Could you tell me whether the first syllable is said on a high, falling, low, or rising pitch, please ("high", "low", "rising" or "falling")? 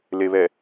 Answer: low